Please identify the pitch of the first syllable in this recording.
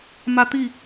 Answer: high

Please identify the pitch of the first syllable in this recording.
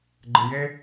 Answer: low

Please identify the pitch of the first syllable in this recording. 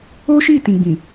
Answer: high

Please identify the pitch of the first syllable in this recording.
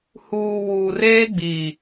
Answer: low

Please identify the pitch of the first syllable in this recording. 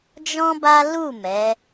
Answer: high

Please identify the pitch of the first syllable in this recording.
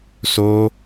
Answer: high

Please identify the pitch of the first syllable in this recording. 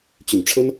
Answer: low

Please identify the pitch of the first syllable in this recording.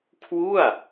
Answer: falling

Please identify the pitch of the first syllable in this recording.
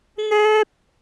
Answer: high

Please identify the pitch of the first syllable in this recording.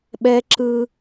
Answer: high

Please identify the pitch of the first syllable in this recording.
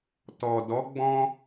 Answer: low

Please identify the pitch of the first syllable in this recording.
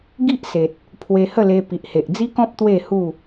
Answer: high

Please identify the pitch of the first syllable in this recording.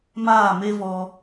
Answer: falling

